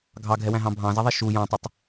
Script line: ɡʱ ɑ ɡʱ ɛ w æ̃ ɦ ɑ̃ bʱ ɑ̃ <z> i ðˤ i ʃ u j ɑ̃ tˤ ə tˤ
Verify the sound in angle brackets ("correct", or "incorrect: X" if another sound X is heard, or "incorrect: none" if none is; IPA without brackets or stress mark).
correct